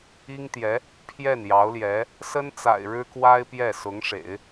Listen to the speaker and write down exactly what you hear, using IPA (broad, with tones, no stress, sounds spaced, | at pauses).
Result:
i˥ ŋ t̪ j ɛ˧˥ | pʰ j ɛ˥˩ n j ɑ˧˥ ʊ̯ l j ɛ˧˥ | s ə˥ n t͡s a̰˨˩ ɪ̯ ɻ ɻ̩˥ k w a˥ ɪ̯ p j ɛ˥˩ s ʊ˧˥ ŋ ʂ ḛ˨˩˦ ɪ̯